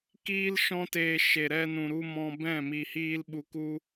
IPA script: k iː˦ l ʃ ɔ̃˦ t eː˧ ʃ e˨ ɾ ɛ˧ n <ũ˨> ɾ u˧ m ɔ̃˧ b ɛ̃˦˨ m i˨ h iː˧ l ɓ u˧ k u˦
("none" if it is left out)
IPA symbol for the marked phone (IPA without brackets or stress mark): ũ˨